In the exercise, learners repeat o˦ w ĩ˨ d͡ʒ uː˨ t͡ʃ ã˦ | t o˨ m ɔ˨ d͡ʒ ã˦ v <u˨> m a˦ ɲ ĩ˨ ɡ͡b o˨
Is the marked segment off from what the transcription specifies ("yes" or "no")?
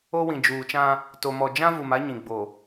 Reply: no